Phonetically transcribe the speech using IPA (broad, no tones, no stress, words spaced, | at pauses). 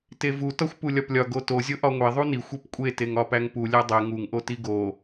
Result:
tevu tɒxʷpulʲɒplʲɒ ɡoto zʲoʔɒŋʷe ðˤunixʷ ipkʷʼe teŋɒpæŋpu lʲædˤe ŋuŋ ʔotiɡo